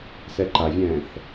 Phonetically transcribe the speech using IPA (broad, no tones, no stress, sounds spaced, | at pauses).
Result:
s ɛ ǃ a vʲ ɛ̃ː θ